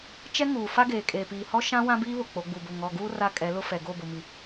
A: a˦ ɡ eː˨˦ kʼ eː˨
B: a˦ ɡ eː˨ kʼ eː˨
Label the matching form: B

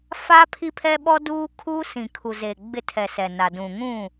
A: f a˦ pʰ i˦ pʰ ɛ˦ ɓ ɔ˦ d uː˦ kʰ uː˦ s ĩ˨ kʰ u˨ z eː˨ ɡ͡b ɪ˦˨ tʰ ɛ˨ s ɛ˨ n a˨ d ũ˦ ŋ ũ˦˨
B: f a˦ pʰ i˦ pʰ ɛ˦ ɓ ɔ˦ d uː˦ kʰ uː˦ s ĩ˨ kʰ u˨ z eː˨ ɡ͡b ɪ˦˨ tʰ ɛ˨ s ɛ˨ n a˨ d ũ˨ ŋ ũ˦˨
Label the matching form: B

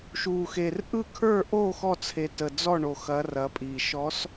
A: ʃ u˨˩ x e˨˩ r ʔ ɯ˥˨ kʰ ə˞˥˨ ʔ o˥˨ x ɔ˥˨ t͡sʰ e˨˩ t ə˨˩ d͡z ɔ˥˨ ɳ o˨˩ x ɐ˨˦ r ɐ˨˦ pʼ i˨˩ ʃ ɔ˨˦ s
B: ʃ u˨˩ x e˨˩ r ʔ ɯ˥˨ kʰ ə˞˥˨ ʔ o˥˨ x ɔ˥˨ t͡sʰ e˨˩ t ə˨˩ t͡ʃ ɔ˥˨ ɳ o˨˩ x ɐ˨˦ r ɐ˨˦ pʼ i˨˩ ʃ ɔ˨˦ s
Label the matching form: A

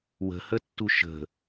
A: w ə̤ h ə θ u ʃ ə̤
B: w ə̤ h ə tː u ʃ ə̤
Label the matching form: B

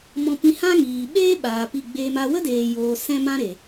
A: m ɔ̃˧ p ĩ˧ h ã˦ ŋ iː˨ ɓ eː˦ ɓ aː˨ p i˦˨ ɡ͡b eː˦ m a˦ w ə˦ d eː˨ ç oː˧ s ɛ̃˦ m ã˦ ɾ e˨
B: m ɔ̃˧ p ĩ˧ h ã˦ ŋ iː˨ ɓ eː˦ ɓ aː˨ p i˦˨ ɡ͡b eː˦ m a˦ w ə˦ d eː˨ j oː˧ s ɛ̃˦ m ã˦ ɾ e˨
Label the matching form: B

